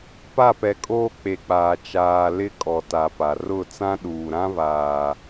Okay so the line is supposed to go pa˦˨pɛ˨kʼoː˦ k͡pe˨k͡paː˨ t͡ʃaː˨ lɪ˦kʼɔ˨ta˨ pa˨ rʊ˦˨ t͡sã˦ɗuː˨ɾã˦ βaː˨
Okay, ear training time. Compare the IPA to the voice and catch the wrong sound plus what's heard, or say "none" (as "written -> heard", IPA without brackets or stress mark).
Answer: none